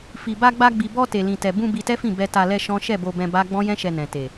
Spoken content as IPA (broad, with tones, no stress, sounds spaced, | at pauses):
f i˨ b a˧ ɡ͡b a˧ ɡ͡b i˨ b ɔ˧ t e˨ l ĩ˨ t ɛ˨ b ũ˧ b i˧ t ɛ˦ f ĩ˦˨ b ɛ˧ t a˧ l ɛ˧ ʃ ɔ̃˦ ʃ ɛ˦˨ b o˧ b ɛ̃˧ b a˦ ɡ͡b ɔ̃˦ j ɛ̃˦ ʃ ɛ˧ n ɛ̃˨ t e˨